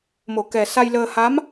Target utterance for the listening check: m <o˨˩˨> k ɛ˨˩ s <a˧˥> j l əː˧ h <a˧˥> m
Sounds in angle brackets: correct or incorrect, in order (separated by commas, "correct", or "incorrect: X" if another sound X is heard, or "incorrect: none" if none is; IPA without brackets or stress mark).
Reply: correct, incorrect: a˧, correct